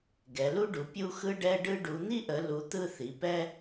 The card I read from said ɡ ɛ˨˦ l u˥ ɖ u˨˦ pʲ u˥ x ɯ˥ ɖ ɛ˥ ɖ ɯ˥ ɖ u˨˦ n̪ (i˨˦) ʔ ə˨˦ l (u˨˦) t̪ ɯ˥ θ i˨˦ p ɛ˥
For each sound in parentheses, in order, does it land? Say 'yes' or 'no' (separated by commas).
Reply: no, yes